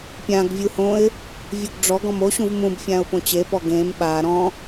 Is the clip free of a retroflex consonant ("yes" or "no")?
no